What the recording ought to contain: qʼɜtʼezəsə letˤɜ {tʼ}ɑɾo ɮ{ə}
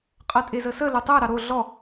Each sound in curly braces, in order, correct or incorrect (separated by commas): incorrect, incorrect